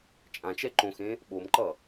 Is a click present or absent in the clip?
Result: present